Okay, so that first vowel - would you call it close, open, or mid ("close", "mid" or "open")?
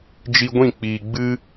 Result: close